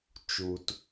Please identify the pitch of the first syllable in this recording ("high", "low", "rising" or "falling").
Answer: low